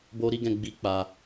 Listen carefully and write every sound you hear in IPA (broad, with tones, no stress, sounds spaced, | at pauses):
b o˧ ɾ i˧ ɡ ɛ̃˨ ɡ͡b i˨˦ k͡p a˧